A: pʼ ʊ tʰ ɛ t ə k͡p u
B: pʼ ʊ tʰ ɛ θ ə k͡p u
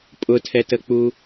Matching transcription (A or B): A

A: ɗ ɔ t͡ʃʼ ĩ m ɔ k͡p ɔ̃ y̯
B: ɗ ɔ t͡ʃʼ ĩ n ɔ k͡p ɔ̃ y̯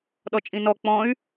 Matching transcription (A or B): B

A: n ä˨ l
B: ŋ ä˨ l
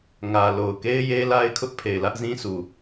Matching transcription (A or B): B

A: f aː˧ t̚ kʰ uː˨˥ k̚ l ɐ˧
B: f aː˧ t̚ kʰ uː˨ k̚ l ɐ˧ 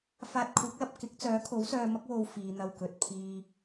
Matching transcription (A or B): A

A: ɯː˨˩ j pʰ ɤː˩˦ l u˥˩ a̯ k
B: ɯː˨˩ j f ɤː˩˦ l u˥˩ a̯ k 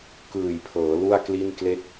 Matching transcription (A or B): A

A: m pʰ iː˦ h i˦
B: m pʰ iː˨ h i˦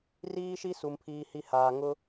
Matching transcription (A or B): A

